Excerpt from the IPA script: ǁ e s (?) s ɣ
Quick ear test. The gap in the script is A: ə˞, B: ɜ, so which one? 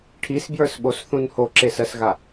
B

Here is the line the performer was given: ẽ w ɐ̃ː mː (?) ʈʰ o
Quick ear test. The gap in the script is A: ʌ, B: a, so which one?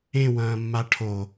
B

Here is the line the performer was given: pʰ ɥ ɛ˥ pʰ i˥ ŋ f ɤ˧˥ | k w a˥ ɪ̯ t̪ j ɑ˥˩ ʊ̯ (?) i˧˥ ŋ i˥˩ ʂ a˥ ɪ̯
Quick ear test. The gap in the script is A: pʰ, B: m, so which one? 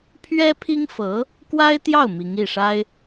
B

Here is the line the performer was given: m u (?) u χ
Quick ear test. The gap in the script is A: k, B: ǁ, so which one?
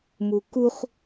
A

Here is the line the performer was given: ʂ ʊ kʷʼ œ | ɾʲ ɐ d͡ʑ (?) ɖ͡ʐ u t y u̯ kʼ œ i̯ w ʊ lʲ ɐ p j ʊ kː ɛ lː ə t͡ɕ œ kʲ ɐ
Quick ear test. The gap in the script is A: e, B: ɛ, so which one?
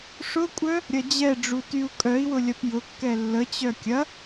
B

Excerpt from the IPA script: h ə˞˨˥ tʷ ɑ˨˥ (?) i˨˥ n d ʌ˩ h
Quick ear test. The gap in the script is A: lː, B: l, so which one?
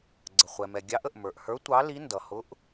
B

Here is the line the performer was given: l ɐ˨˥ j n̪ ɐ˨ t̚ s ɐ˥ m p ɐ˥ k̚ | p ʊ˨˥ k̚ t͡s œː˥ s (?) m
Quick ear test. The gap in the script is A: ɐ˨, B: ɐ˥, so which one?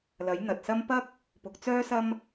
B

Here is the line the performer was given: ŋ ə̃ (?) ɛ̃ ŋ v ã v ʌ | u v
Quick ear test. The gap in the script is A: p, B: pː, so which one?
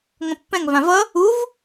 B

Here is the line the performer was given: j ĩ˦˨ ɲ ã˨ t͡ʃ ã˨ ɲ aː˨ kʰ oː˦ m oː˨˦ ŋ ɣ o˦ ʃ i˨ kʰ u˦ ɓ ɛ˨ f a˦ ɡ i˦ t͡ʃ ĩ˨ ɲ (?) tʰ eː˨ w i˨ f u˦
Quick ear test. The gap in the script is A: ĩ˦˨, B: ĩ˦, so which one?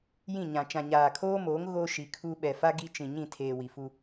A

